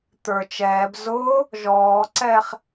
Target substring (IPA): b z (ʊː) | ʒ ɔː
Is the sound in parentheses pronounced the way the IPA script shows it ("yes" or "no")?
yes